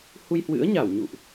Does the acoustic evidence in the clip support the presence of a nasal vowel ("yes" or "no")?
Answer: no